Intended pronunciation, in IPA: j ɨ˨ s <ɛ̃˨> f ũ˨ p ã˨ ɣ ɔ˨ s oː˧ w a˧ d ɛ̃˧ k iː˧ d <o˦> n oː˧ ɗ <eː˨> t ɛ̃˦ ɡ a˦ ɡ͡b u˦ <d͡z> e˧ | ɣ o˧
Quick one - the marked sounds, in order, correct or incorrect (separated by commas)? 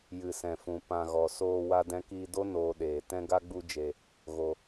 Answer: correct, correct, correct, incorrect